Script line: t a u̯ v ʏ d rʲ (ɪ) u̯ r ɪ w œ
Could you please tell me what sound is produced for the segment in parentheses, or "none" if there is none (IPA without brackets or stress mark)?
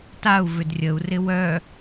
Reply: ə